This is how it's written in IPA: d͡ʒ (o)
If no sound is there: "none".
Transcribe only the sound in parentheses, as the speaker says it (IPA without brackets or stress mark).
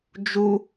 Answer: u